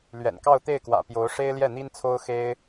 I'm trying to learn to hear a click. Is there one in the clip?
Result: no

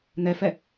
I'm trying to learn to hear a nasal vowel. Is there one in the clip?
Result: no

